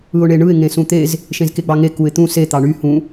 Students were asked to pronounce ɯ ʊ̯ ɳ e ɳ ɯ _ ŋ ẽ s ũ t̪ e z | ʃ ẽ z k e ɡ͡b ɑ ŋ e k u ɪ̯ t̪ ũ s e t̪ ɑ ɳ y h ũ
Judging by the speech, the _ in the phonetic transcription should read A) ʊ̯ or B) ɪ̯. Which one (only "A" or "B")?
B